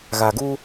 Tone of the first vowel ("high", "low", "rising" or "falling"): low